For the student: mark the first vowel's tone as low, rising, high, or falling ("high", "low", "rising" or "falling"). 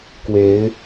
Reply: rising